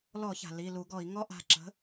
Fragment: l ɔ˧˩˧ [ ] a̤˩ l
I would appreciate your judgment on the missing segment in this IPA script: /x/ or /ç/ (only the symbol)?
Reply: ç